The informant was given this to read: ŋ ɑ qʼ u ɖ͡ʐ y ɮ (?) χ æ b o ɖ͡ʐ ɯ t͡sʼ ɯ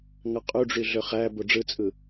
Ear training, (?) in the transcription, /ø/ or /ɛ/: ø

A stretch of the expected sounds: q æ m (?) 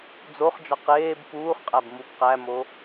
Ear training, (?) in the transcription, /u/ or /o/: o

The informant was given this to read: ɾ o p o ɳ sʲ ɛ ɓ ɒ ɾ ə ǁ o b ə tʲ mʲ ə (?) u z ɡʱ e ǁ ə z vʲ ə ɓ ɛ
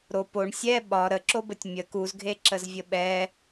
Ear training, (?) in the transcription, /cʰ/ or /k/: k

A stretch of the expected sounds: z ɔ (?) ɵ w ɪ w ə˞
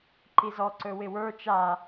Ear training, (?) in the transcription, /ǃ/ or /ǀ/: ǀ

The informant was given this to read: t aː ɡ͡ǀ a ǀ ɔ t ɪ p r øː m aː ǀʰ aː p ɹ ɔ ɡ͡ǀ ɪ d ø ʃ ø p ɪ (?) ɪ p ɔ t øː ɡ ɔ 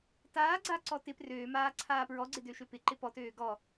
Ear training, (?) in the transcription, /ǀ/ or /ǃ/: ǃ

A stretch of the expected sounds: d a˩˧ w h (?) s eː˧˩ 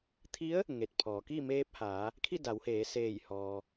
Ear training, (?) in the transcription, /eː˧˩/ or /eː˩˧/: eː˩˧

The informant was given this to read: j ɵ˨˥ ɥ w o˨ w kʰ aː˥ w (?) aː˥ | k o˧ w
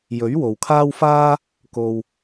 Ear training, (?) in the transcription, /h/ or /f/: f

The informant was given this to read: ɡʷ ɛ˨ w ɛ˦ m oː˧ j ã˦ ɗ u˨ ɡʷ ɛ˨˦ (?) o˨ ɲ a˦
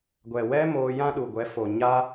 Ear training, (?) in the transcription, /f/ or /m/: f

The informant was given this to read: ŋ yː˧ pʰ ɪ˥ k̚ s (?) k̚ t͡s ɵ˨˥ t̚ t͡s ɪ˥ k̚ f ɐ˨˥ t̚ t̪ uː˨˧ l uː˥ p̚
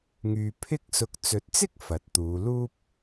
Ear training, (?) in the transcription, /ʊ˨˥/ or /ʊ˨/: ʊ˨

